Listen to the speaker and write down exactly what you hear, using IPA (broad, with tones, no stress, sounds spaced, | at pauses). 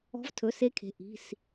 ɔ̤˧˥ v tʰ ɵ˩˧˩ s e˧˥ kʰ e̤˩˧˩ ʔ i̤˩˧˩ s